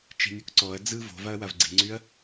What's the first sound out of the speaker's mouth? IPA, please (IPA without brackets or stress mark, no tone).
t͡ʃ